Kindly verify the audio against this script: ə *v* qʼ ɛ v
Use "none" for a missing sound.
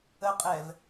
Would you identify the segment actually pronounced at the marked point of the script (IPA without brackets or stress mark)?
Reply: none